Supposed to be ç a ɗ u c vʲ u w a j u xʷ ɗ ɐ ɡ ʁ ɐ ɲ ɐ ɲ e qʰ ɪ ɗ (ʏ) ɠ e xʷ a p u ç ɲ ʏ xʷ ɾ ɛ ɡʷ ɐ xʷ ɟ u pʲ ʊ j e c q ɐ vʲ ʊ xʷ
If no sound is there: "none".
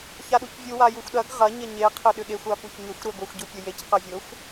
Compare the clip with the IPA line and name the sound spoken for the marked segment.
ʏ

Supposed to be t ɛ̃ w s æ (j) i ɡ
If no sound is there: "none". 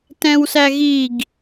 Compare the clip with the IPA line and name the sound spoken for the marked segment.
ɣ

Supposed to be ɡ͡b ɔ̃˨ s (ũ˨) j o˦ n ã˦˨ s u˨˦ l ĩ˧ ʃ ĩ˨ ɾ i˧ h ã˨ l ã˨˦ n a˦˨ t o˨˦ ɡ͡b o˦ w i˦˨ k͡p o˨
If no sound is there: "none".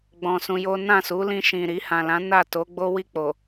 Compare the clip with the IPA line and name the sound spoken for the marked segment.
ũ˧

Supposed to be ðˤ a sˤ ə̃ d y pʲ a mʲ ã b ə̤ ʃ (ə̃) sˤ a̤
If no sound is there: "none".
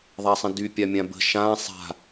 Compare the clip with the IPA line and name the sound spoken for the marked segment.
ã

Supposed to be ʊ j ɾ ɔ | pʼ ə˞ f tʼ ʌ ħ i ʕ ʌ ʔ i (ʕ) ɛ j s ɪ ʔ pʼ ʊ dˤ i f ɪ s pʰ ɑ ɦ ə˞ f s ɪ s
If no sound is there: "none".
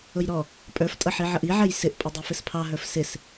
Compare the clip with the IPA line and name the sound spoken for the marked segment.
ʕ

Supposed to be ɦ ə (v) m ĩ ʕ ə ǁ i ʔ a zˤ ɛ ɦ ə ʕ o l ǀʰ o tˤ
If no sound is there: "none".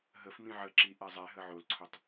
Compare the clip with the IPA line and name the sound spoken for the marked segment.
f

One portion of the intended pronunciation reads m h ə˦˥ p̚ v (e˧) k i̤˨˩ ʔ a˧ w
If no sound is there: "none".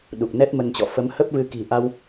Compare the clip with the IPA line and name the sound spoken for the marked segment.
ɨ˧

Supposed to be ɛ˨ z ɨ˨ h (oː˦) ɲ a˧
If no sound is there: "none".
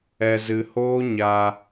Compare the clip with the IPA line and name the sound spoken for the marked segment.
oː˦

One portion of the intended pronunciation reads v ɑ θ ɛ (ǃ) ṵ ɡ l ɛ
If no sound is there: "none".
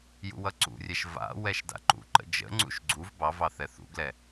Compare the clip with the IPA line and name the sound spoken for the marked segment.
θ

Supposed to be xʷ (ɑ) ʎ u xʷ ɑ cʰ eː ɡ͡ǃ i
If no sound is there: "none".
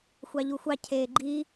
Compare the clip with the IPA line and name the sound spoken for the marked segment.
ɑ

